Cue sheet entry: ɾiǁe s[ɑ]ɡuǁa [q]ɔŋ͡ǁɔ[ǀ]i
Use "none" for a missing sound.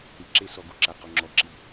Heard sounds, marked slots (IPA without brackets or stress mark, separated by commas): ɔ, q, ǁ